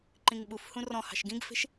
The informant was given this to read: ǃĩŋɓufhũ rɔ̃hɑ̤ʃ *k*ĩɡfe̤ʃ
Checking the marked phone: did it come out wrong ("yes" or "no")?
yes